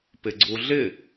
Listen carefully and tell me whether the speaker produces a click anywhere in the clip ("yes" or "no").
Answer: yes